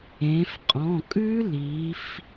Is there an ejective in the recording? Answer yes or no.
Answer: yes